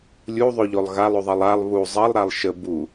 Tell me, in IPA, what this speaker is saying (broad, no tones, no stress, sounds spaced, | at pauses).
lʲ u ðˤ ʉ ʎ o lˠ ɣ a lˠ ʉ ðˤ ʌ lˠ a lˠ β u zˤ ʌ lˠ ɾ a lˠ ʃ ə b u